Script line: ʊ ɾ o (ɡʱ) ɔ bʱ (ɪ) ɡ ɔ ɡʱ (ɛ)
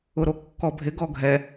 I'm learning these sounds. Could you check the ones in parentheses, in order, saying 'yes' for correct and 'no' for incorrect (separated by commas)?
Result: no, yes, yes